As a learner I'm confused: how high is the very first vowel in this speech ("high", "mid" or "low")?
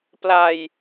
low